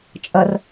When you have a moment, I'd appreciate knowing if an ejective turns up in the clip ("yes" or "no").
yes